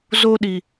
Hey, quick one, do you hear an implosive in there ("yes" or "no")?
yes